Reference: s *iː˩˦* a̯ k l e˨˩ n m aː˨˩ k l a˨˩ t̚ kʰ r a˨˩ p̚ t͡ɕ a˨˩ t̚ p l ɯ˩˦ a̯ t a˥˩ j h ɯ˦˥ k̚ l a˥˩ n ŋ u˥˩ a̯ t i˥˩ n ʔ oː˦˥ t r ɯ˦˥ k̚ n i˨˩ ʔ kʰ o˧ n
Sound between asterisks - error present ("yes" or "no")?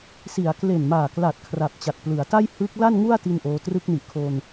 yes